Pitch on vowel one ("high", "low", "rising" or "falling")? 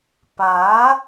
rising